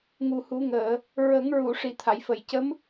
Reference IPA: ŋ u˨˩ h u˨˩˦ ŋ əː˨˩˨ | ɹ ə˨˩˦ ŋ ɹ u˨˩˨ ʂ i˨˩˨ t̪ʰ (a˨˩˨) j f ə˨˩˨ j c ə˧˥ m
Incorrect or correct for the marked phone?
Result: correct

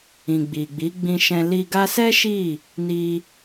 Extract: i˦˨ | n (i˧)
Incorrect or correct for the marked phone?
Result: correct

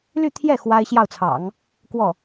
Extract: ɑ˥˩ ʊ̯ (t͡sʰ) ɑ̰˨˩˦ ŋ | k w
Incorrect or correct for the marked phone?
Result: correct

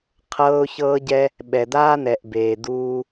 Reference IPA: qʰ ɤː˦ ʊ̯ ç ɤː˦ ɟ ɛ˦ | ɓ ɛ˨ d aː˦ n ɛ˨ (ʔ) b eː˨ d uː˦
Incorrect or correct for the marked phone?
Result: correct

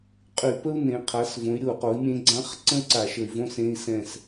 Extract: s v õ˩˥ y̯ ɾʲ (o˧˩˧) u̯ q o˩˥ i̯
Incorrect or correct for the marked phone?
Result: correct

